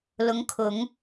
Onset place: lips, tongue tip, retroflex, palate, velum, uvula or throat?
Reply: tongue tip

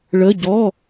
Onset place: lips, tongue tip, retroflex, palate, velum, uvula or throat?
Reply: retroflex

